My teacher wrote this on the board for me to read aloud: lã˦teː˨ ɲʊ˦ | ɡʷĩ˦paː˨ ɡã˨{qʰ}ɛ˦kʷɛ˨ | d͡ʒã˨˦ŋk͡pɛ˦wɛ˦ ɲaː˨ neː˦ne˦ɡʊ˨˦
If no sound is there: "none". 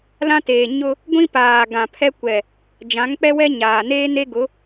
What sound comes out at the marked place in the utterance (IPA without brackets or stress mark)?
pʰ